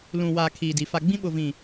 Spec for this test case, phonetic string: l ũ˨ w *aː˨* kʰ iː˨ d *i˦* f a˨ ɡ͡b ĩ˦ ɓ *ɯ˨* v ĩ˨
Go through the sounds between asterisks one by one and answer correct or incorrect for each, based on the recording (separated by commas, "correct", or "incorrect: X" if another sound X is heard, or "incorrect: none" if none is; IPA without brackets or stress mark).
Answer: correct, incorrect: i˨, incorrect: ʊ˨